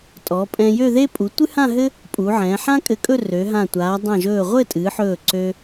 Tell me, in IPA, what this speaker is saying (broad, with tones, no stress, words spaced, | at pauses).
tʼɔ˩˧pʼɛ̃˧jø˥˧ðe˥ pʼu˩˧tʷɨ˥hã˥˧ɦɘ˥ | pʼu˩˧ʕɛ̃ː˩˧ ħã˥kʼɘ˧˩kʼɵ˥˧ rø˩˧ɦã˧˩ tʷaː˩˧dˤã˧˩ʒɵː˧˩ ʁʷɘ˥˧tʼɨ˩˧ħɵː˧˩ ǀø˧